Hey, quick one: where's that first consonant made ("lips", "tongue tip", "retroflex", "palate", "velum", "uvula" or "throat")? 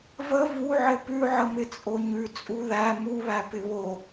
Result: lips